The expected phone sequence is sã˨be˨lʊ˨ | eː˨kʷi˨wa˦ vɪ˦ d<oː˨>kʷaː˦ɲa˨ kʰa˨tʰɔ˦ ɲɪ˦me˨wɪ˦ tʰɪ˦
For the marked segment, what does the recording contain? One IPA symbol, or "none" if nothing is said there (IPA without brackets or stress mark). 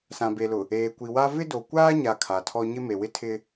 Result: o˨